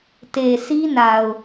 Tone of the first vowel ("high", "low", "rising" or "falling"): low